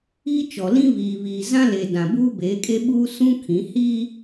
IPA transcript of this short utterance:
iː˦ t͡ʃ ɔ˨ l ĩ˦ β iː˨ β iː˨ z ã˦ l e˨ d ã˨ b uː˦ b eː˨˦ kʼ e˦ ɓ uː˦ s ũ˦ kʰ ĩ˨˦ h iː˦

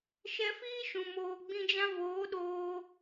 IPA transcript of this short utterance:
ʃ ɛ˧ f iː˦ ʃ ũ˨ m oː˨ ɡ͡b ĩ˧ d͡ʒ ã˧ v oː˨˦ ɗ oː˧

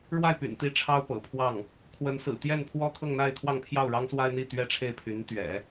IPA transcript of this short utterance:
ɻ w a˥˩ ɪ̯ p y̰˨˩ n t̪ i˥˩ ʈ͡ʂʰ ɑ˥ ʊ̯ p ɤ̰˨˩ pʰ w ɑ˥˩ ŋ | kʰ w ə˧˥ n s ɹ̩˨˩ t̪ j ɛ˥˩ n pʰ w ɔ˥ kʰ ɤ˥˧ ŋ n̪ a˥˧ ɪ̯ t̪ʰ w ɑ˥˧ ŋ pʰ j ɑ˥˩ ʊ̯ ɻ ɑ˥ ŋ s w a˥ ɪ̯ n̪ i˥˩ t̪ ɥ ɛ˥ ʈ͡ʂʰ e˥˩ ɪ̯ pʰ y˧˥ n t̪ ɥ ɛ̰˨˩˦

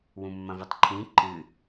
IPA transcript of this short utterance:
w ũ mː ɐ̃ v i tˤ ǃʰ ĩ ǃ ɨ

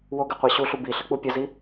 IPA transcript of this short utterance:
w o ɡ ɘ qʷ ɑ ɕ u ɬ u b i ɬ ɘ k͡p u pʲ ɐ z i

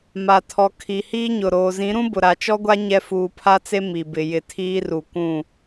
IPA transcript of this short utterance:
m a˨ tʰ ɔ˨ kʰ i˨ h iː˦ ɲ ʊ˨ ɾ oː˨ z ĩ˨˦ ɾ ũ˦ b ʊ˨ ɾ a˨ t͡ʃ ɔ˦ ɡʷ a˦ ɲ ɛ˦ f uː˨ pʰ a˦ t͡s e˦ m i˨ b ɪ˨ j ɪ˨ tʰ iː˦ r u˨ kʷ ũ˦˨

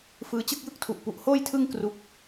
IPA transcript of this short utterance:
f ɯː˦˥ t͡ɕ ɯ˥˩ k̚ j ɯ˥˩ k̚ tʰ u˨˩ ʔ p u˦˥ ʔ h oː˥˩ j tʰ ɯ˥˩ ŋ k r u˦˥ k̚

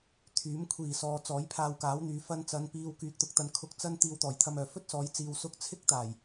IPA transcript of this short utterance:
t̪ʰ yː˨˥ m kʷʰ iː˨˩ s ɔː˨ t͡s ɔː˨˥ j pʰ aː˧ w k aː˨˥ w n̪ yː˨ f ɐ˧ n t͡s ɐ˨˧ n p iː˧ w k yː˨ k̚ t̪ ʊ˨ k̚ t̪ ɐ˨ n kʰ ʊ˧ k̚ t͡s ɐ˥ n t̪ iː˧ w t̪ ɔː˨˩ j t̪ʰ ɐ˧ m œː˨˩ f ɵ˥ t̚ s ɔː˨˧ j t͡s iː˨ w s ʊ˥ k̚ t͡sʰ ɪ˥ k̚ t̪ aː˨˩ j

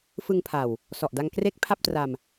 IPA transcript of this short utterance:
f ɯ˧ ŋ pʰ a˨˩ w | s ɔ˨˩ ʔ d a˧ ŋ k r e˦˥ k̚ pʰ a˥˩ p̚ t r a˧ m

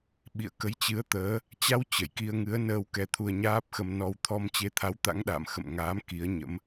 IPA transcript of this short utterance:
ɓ ḭ˧˨ ə̯ k ə˨˦ j t͡ɕ ɨ˨˦ ə̯ t̪ əː˨˦ | t͡ɕ a˧ w t͡ɕ ə˧˩ j k i˧ ə̯ ŋ ɨ˨˦ ə̯ n əː˧ w k ɛ˧ t̪ʰ u˧ ə̯ ɲ aː˦˥ p̚ x ə˧ m n ɔ˧ w t̪ʰ ɔ˧ m t͡ɕ e˨˦ t̪ʰ a˨˦ w t̪ a̰˧˥ ŋ ɗ a̰ː˧˨ m x ə̰˧˨ m ŋ aː˨˦ m k i˨˦ ə̯ ɲ ə̰˧˥ m

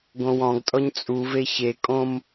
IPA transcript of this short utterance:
ɡ õ w ɔ̃ ɡ tʼ ɔ ɲ t͡sʼ u v e ç e kʼ õ m

